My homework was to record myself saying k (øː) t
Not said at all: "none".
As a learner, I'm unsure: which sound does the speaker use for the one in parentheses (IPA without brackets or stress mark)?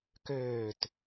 øː